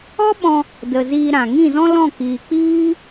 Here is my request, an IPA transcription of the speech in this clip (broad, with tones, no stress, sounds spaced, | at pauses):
ɔ˦ ɓ ɔ̃˧ | d ə˨ z iː˧ ɾ ã˨ ŋ ĩ˦˨ z ɔ̃˦ l ɔ̃˦˨ k iː˨ k͡p iː˦